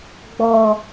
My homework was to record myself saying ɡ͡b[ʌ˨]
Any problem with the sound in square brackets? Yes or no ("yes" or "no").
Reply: yes